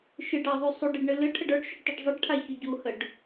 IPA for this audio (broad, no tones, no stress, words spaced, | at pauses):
ʃɨɖɑðˤu sˤuɖiɖɳɨ lɨʈʰəɖ ə˞ɖʃuɖtˤiɖ zˤɨɖʈʰaçʏ ɟuhəɖ